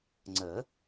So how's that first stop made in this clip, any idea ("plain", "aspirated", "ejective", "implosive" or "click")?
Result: click